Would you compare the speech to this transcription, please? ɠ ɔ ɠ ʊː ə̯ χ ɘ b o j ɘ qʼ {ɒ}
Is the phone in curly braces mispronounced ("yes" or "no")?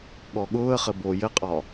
no